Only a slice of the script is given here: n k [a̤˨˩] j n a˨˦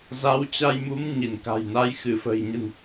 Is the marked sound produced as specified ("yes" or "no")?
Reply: yes